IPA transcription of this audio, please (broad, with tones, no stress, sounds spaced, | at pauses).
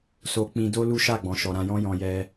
s o˧ k͡p ĩ˧ d o˦ l u˦ ʃ a˦˨ ɡ͡b ɔ̃˨ ʃ ɔ˨ ɾ ã˧ j ɔ̃˦ j ɔ̃˧ j ɛ˧